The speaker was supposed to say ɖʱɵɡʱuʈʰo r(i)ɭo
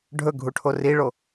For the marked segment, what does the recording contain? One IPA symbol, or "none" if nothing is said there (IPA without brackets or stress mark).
i